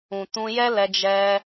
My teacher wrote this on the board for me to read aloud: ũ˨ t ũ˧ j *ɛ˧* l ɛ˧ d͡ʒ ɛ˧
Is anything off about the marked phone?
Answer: yes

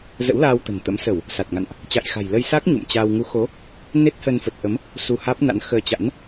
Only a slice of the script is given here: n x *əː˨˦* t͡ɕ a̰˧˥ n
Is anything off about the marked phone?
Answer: yes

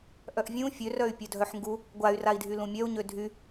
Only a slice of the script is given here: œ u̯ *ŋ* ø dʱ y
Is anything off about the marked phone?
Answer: yes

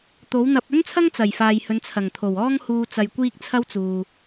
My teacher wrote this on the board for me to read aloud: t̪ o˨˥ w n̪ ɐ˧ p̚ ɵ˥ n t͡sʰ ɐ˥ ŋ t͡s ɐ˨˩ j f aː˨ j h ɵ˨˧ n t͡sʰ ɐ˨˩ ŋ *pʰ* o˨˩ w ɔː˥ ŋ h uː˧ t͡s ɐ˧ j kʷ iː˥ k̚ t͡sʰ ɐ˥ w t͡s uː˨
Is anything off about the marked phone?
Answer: yes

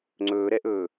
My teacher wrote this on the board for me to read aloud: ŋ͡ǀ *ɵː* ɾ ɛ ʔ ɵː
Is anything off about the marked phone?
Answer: no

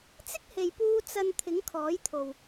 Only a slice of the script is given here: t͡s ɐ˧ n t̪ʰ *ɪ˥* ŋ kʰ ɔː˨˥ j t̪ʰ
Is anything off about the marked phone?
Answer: yes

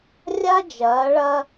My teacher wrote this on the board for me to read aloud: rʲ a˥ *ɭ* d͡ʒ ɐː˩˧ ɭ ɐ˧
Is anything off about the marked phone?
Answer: yes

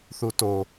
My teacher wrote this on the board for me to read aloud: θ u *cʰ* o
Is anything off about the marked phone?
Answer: yes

